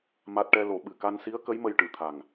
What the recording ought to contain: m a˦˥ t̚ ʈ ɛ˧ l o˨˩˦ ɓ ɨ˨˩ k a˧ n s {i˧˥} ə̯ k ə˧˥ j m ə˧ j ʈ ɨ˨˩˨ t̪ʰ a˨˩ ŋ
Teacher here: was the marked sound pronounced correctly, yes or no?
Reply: yes